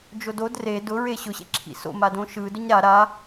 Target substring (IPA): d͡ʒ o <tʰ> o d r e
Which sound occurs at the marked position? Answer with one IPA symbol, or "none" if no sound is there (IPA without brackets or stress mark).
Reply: d